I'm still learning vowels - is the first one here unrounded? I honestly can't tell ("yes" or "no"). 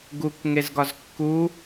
no